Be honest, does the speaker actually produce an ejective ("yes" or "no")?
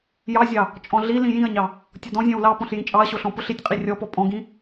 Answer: yes